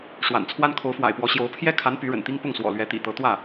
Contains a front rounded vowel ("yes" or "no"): yes